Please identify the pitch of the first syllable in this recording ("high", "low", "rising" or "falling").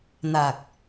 low